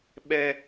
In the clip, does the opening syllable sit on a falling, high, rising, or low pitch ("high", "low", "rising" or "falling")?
low